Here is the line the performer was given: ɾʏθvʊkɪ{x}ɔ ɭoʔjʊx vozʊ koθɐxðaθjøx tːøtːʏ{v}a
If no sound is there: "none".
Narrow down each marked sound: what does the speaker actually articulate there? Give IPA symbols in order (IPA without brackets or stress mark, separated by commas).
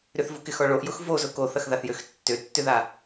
x, ð